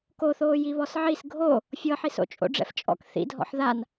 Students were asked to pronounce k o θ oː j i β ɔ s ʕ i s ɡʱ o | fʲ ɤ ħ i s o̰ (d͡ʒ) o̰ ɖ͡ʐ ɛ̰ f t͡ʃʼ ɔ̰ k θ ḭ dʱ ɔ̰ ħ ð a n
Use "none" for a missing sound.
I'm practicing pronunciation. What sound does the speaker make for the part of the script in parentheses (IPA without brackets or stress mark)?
t͡ʃʼ